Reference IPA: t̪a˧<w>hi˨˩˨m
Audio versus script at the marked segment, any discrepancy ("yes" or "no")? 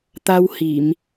no